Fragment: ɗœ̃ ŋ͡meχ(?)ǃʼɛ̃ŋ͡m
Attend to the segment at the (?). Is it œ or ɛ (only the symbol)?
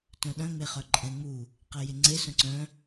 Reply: œ